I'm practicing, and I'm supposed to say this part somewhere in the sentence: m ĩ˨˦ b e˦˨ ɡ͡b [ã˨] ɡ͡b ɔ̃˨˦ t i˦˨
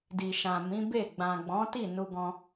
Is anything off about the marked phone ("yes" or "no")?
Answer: no